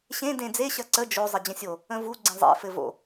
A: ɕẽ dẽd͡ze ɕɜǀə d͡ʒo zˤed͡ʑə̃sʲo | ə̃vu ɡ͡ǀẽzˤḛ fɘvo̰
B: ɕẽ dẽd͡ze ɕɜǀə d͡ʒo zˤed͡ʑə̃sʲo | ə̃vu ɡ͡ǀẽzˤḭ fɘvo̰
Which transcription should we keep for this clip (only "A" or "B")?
A